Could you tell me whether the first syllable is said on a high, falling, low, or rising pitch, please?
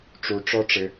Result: low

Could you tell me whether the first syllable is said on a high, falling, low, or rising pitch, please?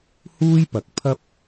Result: high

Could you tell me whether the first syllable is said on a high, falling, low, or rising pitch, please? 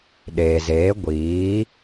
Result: low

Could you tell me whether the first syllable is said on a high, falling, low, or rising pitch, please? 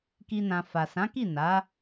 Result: high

